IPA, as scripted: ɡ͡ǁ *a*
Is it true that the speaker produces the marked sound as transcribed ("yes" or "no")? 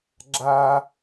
yes